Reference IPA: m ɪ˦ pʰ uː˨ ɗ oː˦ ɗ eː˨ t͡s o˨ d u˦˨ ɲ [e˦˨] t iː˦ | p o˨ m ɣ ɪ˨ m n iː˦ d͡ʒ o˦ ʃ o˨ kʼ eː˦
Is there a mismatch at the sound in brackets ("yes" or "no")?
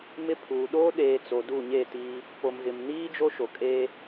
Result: no